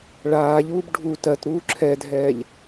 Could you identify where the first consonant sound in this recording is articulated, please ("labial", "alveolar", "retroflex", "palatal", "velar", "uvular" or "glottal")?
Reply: retroflex